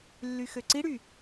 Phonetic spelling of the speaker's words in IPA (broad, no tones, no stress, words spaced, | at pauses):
lːyxøǀiɽy